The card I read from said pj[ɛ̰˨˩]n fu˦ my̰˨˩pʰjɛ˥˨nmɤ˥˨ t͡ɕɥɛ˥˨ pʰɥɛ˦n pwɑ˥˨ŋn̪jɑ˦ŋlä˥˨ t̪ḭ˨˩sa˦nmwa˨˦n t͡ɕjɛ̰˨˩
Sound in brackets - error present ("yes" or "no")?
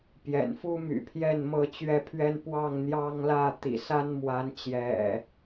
no